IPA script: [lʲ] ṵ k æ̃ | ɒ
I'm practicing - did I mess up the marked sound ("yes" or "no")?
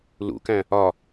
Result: yes